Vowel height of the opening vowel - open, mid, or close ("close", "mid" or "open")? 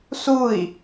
close